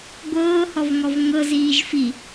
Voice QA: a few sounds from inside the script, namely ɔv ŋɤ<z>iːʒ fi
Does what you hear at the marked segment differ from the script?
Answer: no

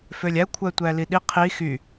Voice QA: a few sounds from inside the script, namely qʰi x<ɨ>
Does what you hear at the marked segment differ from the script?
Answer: yes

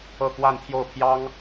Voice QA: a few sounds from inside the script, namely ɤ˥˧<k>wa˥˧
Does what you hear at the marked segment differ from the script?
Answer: no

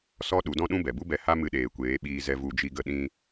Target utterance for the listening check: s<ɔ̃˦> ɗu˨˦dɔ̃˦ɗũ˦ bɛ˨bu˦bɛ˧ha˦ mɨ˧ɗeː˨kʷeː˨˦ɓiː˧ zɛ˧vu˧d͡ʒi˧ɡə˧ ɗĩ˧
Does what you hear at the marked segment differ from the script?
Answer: yes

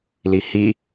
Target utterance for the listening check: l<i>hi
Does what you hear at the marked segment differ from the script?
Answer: no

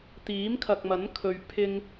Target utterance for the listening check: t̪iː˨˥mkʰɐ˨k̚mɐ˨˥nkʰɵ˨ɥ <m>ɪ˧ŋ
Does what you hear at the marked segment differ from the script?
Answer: yes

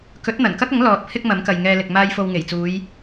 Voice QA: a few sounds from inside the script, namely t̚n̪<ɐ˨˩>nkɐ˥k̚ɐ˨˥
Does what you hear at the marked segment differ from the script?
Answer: no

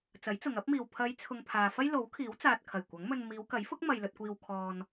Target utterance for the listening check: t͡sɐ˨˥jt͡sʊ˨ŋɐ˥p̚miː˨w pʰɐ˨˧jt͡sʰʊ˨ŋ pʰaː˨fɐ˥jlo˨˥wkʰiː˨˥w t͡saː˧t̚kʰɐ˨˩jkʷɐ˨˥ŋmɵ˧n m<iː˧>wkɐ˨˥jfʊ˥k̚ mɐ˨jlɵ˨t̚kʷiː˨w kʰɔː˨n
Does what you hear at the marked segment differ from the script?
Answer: yes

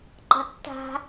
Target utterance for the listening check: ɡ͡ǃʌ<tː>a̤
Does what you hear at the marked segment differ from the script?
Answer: no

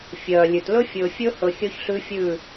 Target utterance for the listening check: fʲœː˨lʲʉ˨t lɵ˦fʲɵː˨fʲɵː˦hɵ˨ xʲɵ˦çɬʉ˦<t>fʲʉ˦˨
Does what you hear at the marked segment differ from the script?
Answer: yes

